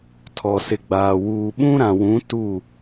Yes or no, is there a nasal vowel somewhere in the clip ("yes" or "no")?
yes